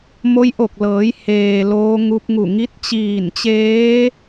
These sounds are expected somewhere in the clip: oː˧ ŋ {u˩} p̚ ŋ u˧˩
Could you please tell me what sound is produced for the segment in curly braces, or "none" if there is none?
u˧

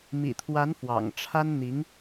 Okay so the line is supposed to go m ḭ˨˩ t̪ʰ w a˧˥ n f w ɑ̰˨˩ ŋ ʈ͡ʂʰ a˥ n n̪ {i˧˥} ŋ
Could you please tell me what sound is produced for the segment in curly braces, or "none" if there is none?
i˧˥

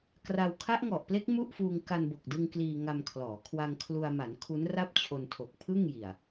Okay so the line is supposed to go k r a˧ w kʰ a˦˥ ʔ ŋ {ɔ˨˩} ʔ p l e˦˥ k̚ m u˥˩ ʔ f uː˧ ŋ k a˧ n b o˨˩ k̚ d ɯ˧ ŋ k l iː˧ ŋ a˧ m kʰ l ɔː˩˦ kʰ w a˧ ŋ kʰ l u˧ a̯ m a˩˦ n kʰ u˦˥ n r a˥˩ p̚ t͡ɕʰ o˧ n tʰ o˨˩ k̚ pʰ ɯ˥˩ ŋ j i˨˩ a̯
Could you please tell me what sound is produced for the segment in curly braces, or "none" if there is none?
ɔ˨˩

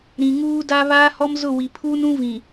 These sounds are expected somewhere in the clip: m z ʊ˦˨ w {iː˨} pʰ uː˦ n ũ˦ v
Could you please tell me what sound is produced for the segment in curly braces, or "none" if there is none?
i˨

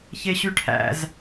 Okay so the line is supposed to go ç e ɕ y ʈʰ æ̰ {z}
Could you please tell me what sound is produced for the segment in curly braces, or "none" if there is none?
z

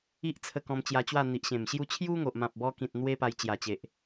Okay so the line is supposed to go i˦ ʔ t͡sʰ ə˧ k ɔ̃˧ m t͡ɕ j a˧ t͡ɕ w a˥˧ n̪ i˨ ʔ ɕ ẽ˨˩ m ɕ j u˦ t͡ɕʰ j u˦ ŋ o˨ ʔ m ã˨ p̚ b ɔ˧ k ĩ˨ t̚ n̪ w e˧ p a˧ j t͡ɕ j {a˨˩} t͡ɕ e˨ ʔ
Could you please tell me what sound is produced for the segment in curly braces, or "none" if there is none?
a˨˩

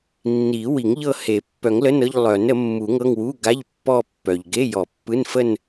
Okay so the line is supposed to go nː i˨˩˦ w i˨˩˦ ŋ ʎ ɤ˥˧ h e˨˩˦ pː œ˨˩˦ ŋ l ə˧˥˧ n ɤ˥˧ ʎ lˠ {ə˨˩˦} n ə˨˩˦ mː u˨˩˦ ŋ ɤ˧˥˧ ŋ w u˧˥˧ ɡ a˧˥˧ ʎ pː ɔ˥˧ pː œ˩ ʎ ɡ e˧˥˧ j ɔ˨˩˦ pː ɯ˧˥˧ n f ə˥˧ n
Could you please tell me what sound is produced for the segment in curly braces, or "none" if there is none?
œ˨˩˦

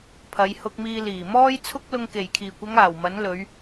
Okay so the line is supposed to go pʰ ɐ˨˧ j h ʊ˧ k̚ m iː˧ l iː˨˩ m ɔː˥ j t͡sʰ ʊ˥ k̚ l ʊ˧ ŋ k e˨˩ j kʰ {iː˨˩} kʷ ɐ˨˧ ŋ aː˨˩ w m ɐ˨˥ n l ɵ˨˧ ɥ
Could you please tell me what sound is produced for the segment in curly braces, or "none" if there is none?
iː˨˩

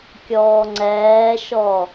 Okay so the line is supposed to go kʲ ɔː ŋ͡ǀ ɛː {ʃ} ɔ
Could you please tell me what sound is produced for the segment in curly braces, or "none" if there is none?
ʃ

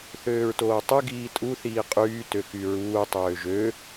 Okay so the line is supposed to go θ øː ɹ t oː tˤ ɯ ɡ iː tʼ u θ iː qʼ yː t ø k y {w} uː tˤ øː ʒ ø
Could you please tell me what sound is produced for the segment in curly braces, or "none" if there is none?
ɹ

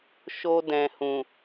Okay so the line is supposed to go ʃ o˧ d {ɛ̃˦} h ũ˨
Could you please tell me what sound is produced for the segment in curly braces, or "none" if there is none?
ɛ̃˨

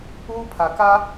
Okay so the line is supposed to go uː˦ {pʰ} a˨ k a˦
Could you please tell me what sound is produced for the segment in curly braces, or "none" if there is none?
pʰ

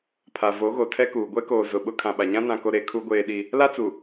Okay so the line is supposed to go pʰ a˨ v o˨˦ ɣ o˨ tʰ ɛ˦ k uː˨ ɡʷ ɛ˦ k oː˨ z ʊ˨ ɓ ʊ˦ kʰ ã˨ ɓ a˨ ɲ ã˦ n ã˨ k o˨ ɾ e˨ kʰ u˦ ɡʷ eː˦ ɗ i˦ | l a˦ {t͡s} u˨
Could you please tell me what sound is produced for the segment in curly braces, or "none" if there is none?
t͡s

